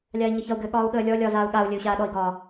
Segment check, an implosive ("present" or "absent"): present